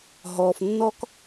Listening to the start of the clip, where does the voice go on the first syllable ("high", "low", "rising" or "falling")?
low